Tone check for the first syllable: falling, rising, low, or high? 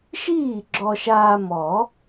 falling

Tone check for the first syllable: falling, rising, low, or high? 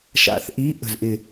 low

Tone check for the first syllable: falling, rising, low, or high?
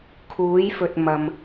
rising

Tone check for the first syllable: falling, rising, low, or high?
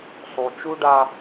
low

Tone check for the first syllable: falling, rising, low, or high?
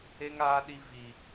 high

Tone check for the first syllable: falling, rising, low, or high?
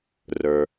low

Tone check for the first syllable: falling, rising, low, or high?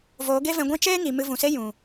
rising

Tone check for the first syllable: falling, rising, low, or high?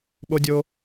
high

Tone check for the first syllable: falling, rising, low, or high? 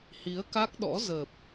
rising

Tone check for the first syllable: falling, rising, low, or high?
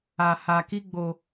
low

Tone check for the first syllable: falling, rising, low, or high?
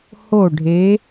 falling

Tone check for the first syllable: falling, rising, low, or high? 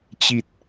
low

